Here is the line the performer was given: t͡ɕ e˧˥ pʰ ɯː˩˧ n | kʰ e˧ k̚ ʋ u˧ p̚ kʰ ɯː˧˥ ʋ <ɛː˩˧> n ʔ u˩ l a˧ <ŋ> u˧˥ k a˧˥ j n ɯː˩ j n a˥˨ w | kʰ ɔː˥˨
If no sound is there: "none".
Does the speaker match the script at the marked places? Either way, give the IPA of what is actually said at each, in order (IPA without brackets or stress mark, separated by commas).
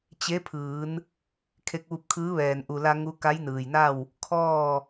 ɛː˩, ŋ